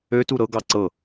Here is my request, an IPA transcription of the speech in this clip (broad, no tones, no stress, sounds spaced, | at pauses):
ø t u ɾ ɤ ɡ ɑ ǀ ɤ